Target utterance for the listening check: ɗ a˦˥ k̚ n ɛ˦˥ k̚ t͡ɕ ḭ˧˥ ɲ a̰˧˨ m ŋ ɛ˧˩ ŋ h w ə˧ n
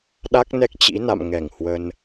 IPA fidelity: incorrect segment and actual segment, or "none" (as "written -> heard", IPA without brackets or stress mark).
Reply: ɲ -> n